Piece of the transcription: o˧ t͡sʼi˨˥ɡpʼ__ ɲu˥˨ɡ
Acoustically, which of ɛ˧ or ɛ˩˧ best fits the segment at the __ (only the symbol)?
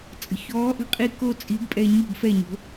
ɛ˧